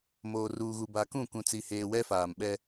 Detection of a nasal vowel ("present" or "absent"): present